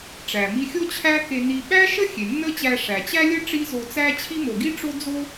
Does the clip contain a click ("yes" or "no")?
no